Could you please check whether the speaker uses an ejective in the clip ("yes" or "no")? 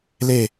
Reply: no